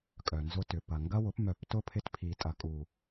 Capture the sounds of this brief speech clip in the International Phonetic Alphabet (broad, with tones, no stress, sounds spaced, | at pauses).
kʼ œ˨ n z ʊ˦ t ʏ˨ p ɐ˨ ŋ ɡ ɐ˦ w ʊ˨˦ p m œ˨ p t ʊ˦ pʰ ɪ˧ t pʰ i˨ tʼ ɐ˨ kʼ u˨